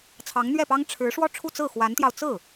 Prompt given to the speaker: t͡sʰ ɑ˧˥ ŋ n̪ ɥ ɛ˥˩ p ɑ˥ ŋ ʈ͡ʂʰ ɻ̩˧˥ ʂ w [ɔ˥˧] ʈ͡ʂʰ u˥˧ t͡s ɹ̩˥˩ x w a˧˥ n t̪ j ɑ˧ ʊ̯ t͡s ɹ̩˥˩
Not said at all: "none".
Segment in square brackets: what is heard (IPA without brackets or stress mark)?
ɔ˥˧